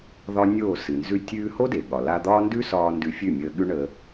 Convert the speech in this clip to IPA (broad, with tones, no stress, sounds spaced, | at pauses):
ð ɒ˦ nʲ o˦˨ s ɨ˨ n z ʉ˦ tʲ ʉː˧ h o˦ d e˨ ɠ ɒ˨ l a˧ d̪ ɒː˦ n d ʉ˦ s ɒː˧ n d ʉ˧ fʲ ʉ˦˨ mʲ əː˧ ɠ ʉ˦ ɳ əː˧